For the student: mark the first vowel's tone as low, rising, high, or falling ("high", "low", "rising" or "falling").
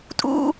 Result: high